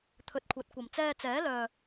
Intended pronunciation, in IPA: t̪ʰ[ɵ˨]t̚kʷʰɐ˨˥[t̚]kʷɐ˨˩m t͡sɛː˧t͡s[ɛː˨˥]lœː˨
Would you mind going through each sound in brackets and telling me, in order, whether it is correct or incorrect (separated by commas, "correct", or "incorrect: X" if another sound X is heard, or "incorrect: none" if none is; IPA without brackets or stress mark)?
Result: correct, correct, correct